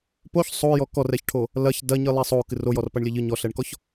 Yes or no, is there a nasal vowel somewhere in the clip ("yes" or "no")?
no